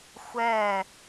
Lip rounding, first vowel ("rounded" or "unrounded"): unrounded